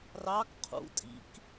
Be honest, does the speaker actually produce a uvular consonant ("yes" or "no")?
yes